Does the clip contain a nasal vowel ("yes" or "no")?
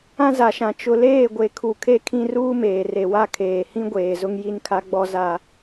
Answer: yes